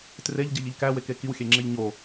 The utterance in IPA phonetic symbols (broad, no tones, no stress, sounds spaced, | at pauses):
t r e ʎ ɟ e ʎ i ʎ k æ w e k e k i w xʲ e ŋ͡ǁ e ʎ ɲ o